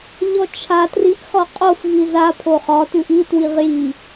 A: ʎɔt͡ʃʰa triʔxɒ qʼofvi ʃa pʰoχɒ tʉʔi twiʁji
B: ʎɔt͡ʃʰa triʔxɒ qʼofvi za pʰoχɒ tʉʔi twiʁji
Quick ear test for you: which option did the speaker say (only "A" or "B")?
B